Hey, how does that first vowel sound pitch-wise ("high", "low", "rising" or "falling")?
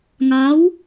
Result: rising